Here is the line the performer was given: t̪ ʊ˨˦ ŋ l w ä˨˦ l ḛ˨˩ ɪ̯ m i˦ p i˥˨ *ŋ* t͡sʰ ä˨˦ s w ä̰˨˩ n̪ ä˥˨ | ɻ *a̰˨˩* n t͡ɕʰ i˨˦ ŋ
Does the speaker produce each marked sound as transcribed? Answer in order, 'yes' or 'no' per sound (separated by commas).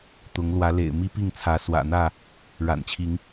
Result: yes, yes